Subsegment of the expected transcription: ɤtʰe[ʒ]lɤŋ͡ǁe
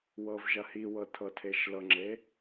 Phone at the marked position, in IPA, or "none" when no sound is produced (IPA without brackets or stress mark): ʃ